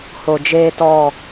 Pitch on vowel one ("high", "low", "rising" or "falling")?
low